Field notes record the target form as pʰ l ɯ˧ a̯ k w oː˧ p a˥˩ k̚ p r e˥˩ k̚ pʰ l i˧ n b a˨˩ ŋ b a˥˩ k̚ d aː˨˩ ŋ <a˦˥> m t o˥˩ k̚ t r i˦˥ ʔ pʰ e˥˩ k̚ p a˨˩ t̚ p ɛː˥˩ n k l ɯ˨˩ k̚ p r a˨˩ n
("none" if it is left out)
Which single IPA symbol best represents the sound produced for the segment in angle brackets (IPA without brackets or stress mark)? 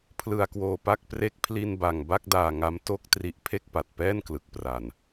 a˦˥